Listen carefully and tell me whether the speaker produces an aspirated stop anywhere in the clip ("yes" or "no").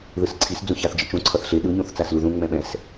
yes